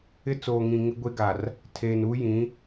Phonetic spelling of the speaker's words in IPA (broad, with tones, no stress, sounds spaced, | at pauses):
ɪ˦ t͡s oː˨ ŋ ĩ˨ ŋ ɪ˦ ɡʷ e˦ ɡ a˨ r | tʰ eː˨ n u˦ j ĩ˨˦